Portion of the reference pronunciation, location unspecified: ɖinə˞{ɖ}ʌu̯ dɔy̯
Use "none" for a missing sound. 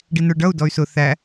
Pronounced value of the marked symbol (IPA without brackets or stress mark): ɖ